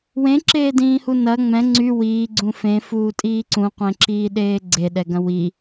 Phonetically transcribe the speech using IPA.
w ẽ ǁ eː d ĩː h u n ɐ ŋ͡m ɛ̃ ŋ͡ǀ y w iː ɡ͡ǀ ũ f ẽ f uː tʼ iː ǀ ũ qʷ ẽ ǁ iː ɗ eː ɡ͡ǀ e ɗ ɛ ɡ ɐ̃ w i

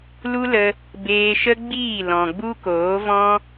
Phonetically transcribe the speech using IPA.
l u˦ l ə˧ | b eː˧ ʃ ə˦ ɡ͡b iː˦˨ l ɔ̃˨ ɡ͡b u˦ k oː˨˦ v ɔ̃˦

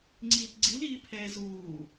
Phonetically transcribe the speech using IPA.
ŋ͡ǀ iː t ɡ͡ǀ i l iː pʰ ɛː z uː

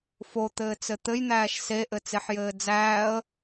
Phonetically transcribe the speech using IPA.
f o t̪ ɘː t͡s ɘ t̪ ɘ j n̪ æː ʃ s e ʔ ɘ t͡s e ħ j ɘː d͡z æː ə̯

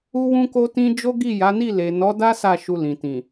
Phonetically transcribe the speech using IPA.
u˦ w ũ˦ k o˦ t ĩ˦ d͡ʒ o˦ ɡ i˦˨ j a˨˦ n i˦˨ l e˨ n ɔ˨˦ d a˦ s a˦˨ ʃ u˧ l ĩ˨ t ĩ˨

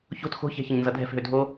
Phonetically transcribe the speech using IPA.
ç o̤ t x o̤ ç ɛ̤ ç ɪ ɲ n z ʌ dʱ ɛ̤ f ɦ ø dʱ o

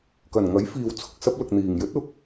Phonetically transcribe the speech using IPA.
k ɐ˨˩ n ŋ ɐ˨˥ j f iː˨ w t͡sʰ ʊ˨ k̚ s ɐ˥ p̚ l ʊ˨ k̚ n̪ iː˨˩ ŋ j ɵ˨˥ t̚ ʊ˨˥ k̚

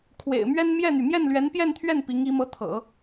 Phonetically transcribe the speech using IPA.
kʰ w ḛ˨˩ ɪ̯ m ɥ ɛ˥ n m j ɛ˥˩ n̪ y˩ m j ɛ˥˩ n l ɥ ɛ˧˥ n p j ɛ˥˧ n t̪ʰ ɥ ɛ˥˩ n p i˧˥ ŋ i˧˥ m ɤ˧˥ t̪ʰ ɤ̰˨˩˦

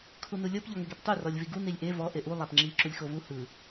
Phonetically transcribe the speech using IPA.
kʰ u n u lʲ ɤ p ʎ ɔ ŋ ɛ ɡ e p tˤ u r ɔ lʲ v i ɡ u n i lʲ ʔ e v ɔ ʔ e ʔ u lˠ a p ŋ͡ǁ i ǁ u lʲ x o v u h ɯ

